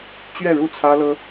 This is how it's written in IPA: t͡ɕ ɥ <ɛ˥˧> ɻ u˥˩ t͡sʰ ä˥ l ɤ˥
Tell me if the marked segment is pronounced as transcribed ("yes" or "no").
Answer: yes